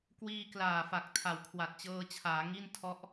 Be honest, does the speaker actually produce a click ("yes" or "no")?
no